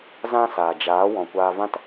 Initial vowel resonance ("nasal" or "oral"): nasal